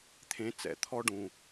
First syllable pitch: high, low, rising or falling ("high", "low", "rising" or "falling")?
rising